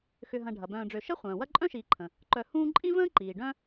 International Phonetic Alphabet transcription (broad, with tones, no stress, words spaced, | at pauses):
xʏ˨ɦɐ̃˨ ɖʱɐ˩bœ̃ː˨ɖ͡ʐø˨ ʃə˥ χʷœ̃ː˩wɐ˥ ǃʼœ̃˥ʃiː˨ǃʰə̃˩ | ǃœ˨ hũː˦ǃʼĩ˥ və̃ː˥ǃiː˩ɖœ̃˦